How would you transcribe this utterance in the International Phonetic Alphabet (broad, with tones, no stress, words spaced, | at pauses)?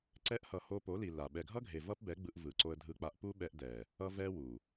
ǀɛ˧ʔhʌ˨ ho˧po˨˦li˨ la˨ ɓɛ˨ɡʱʌ˦ɡʱe˨ vʌ˦pbɛ˨˦ɡ͡bɯ˧ʔ vɯ˨ǀo˧ə̯dʱɯ˧k͡pa˧ʔ pu˦ɓɛ˧ʔdɛ˨ | ʌ˦vɛ˦wu˨